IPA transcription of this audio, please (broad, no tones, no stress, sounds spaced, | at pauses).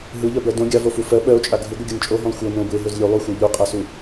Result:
ɦ ɯ ʎ ɜ b ɜ d õ ɡʲ a v o f u f ɜ ɓ ɜ o̯ t͡ʃʼ a ɡʱ ɯ ɡʷ ɯ ɡʲ ɤ n t͡ʃʼ o ɦ õ lˠ xʷ ɤ n õ b ɯ e̯ ɦ ɵ z lʲ u lˠ u xʷ ɜ ʎ u qʼ a s u